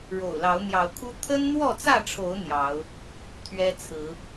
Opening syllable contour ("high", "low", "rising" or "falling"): low